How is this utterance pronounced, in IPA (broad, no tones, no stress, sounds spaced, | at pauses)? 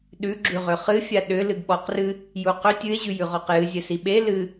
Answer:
ɗ ʉ ɡ͡ǁ ʉ ʁ ʏ χ ɨ fʲ a ɗ ʏ l ɨ ɡ ɓ ɔ q r ɨ | j u q ʏ tʲ ɨ e̯ ʑ ʉ j ʉ ʁ ɔ q j ɨ zʲ ɘ s i ɓ e l ɨ